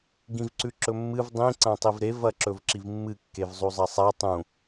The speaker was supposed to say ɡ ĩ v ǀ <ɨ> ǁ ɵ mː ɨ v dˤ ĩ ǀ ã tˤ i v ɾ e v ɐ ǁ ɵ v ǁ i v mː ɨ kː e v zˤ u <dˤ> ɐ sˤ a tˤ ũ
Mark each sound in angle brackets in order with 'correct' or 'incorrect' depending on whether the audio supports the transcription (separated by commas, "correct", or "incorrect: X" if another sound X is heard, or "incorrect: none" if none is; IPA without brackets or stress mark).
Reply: incorrect: ʉ, incorrect: zˤ